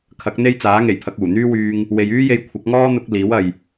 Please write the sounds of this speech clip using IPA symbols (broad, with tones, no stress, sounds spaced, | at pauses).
kʰ ɐ˨˥ k̚ n̪ e˥ j t͡s aː˨˥ ŋ e˨˩ j pʰ ɐ˧ k̚ uː˨˩ n̪ yː˥ w yː˧ ŋ | w e˨ j yː˥ j e˧ j kʷʰ ɐ˨˥ k̚ ŋ ɔː˥ n̪ ʊ˥ k̚ l iː˨˥ w ɐ˨ j